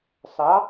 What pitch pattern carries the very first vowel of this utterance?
rising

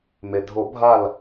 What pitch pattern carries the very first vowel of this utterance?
low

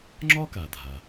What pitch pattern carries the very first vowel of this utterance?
high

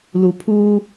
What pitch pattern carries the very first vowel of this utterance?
low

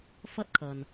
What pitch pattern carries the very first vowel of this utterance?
high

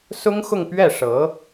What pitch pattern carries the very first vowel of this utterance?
high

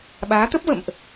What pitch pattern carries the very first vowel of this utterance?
rising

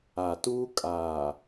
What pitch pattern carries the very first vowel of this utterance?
low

